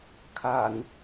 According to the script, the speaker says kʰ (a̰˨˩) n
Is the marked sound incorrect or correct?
correct